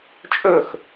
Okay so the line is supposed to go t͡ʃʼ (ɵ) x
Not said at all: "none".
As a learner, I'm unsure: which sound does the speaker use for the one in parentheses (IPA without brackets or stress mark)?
ɵ